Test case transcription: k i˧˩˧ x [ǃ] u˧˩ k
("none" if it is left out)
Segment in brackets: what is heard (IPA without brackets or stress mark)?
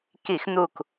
n̪